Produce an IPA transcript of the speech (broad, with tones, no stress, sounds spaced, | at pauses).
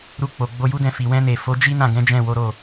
ɾ u˧ k͡p o˨ ɡ͡b o˧ j u˦ d ɛ̃˧ f i˨ w ɛ̃˧ n e˨ f o˨˦ d͡ʒ i˦ n ã˦˨ ɡ ɛ̃˨˦ d͡ʒ ɛ̃˦˨ w o˨˦ ɾ o˦˨